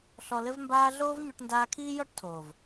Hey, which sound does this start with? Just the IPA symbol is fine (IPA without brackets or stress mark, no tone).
ɬ